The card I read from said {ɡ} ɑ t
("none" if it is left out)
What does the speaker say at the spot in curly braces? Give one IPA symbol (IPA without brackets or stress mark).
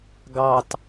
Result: ɡ